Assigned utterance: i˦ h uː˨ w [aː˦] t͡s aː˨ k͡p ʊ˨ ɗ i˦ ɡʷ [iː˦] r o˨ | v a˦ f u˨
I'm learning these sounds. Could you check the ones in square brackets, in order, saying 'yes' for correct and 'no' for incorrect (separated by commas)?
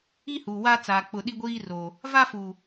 yes, yes